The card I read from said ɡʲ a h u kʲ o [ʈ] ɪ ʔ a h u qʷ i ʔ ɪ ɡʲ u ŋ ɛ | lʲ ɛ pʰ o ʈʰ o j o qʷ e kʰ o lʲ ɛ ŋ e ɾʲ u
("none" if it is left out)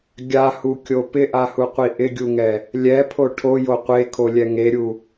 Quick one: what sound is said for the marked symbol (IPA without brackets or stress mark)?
p